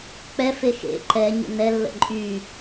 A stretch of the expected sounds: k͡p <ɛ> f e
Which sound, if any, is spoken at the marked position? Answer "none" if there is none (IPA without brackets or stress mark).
ɛ